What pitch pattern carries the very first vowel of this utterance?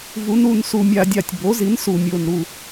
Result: rising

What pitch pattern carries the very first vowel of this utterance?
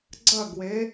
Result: falling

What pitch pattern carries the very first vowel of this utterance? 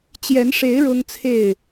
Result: rising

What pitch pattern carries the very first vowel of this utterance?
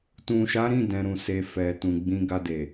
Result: low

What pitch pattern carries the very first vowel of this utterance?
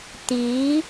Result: rising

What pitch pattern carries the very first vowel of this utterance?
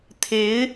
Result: rising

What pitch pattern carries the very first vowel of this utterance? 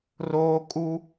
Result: high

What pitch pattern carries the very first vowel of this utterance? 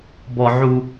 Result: high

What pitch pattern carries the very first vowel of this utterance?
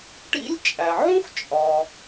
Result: high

